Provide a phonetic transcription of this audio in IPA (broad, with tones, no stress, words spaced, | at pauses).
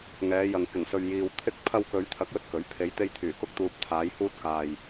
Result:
ŋɛː˨˧jɐ˨ŋ kɪ˨˩ŋsɵ˨ɥ jiː˨w t̪ʰɪ˧k̚ pʰɐ˧wkɵ˨˧ɥt̪ʰɐ˨˥k̚jɵ˨t̚ kɵ˨˥ɥ pʰe˨˧jt̪e˧jt̪ʰyː˨˩ kʊ˧k̚t̪uː˨p̚ t̪ʰaː˨˧jhuː˧t̚ kaː˨j